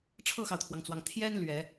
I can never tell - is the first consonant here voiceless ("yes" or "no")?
yes